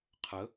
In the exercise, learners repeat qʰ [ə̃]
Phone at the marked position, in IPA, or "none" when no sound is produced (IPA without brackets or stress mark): ə